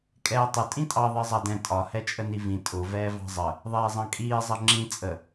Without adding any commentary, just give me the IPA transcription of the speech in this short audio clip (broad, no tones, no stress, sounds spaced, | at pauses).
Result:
kʼ ɛː tˤ ʊ tʼ ĩ tʼ ɑ ðˤ ɜ zˤ ɑ d ɛ̃ tʼ ɒ h ɛ t͡ʃʼ ə n i v ĩ tʼ ʊ v ɛː v ɑ̤ zˤ ə | ðˤ ɛː zˤ ɑ̃ kʼ iː zˤ ʌ ŋ͡ǁ ĩ t͡sʼ ə